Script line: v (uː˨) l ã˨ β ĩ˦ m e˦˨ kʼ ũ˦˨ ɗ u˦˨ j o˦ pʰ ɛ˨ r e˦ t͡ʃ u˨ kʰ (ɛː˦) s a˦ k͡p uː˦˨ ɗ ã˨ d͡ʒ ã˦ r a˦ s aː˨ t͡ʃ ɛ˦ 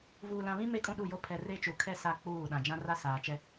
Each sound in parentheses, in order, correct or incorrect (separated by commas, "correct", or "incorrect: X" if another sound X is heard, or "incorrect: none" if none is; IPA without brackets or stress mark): correct, incorrect: ɛ˦